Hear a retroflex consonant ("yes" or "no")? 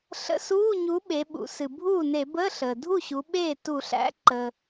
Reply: no